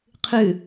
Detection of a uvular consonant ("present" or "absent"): present